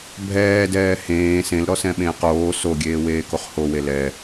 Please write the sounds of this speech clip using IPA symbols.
bʱɛːdɛː hẽː sẽlɾɔsɛ̃ɓẽːq oː soɡʲeːweːkoχ howe lɛ

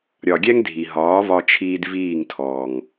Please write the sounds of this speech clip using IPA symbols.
ɾʲɒ˨ɡʲɛ˦ŋ dʱi˨ ɦɒː˨˦vɒ˧t͡ʃʰiː˧d viː˦˨ŋtʰɔː˨ŋ

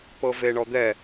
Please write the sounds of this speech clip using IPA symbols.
pɤveɳɔd̪ɛ

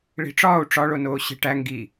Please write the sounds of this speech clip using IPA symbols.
ɭi̤ʈ͡ʂɒːu̯ ʈ͡ʂɒɭonoːɕe̤ ʈæ ŋɡi

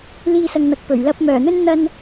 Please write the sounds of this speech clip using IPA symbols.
liː˧sɐ˨ŋn̪ɐ˨k̚pɵ˨˩ɥ lɐ˨p̚mœː˨˩ n̪ɵ˥n n̪ɐ˧n

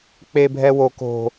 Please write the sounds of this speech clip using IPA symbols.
k͡pebʱɛwo ko̤

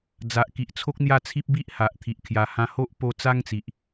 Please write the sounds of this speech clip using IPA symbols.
d͡za˨ʔki˨ʔ t͡sʰo˦k̚n̪ja˥˧t͡sʰi˦p̚ bi˦ʔha˨ʔ t̪ʰi˨ʔkʰja˨˩ hã˧ho˦ʔ po˧ t͡sa˦ŋt͡si˨ʔ

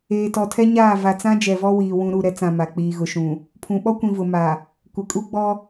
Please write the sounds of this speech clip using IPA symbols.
eː˨tɔ˨tʰɛ˦ɲaː˦˨ va˨t͡sã˦ d͡ʒɛ˨vɔ˦wiː˨ wũ˦ ɾu˦˨ɾɛ˦t͡sã˨ ma˨k͡piː˨ɣʊ˨ʃũ˨ | pʰũ˨ɓɔ˦kʷĩ˨vʊ˨ ma˨ | kʷɪ˨kʼu˦ɡ͡bɔ˦

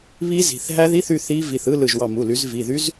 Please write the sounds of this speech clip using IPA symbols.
βi˦˥zi̤˩˧˩θ ɦæ˦˥ði˧˥˧θy˩˧˩ θi˦˥ vi˩˧˩θɯ˧˥˧ lɯ˧˩ʒwɑ˧˩mu˩˧˩ly˨˦z vi˩˧˩ðy˦˥z

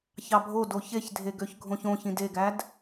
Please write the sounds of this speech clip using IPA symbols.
çɑbʱodo çeçdʱe ɡøçɡʱõçõçĩd eɡæd

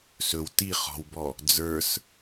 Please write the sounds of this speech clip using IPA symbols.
sɵw ti χɔ̤wbɔ | d͡zə˞s

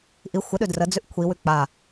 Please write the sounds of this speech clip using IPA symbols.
ʔi xʷəɗʉ drəd͡zʉʔ kʷʰiwʉ k͡pa

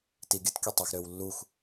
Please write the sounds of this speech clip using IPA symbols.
tiɡʲɯt kʲotˤɯx ɾøwlːux

